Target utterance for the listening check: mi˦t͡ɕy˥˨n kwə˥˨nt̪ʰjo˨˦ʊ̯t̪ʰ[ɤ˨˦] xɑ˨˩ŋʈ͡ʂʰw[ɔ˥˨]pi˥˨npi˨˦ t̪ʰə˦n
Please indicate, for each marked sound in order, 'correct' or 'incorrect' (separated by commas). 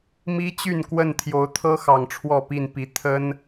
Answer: incorrect, correct